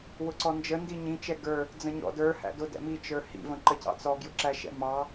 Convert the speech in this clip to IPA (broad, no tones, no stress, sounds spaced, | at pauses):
w ʊ ǀ ɔ n d͡ʒ ə n d i ɲ ĩ t͡ʃ ɛ ɡ ə˞ | d͡z ə̃ ɲ ɔ̰ d ə˞ h æ̰ d ʊ d ɛ̰ m i t͡ʃ ə˞ h ḭ v ə̃ ǃ ə c ɑ̰ t͡s ɔ ɡ j ʊ ǁ æ ʃ ɛ̰ m ɑ